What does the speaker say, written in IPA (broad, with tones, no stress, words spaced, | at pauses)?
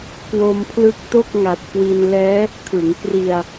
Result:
kwo˧mpʰlɯ˦˥k̚ to˥˩k̚ŋa˨˩t̚kwi˧n lɛː˦˥ | kʰɯ˩˦ŋkri˧a̯